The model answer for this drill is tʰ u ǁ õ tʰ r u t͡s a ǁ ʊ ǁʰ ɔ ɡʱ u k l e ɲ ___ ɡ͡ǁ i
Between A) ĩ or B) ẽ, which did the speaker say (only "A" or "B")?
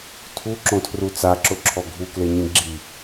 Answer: A